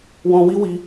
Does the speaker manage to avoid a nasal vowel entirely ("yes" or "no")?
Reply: no